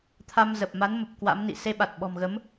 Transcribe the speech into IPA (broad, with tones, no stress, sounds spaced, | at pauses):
t̪ʰ a˧ m z ə˨˩ p̚ m a˨˦ n m ə˨˩ p̚ k w a̰˧˥ m n ḭ˧˨ s e˧ ɓ a˨˩ t̚ ɓ ɔ̤˨˩ m ɣ ə˨˦ m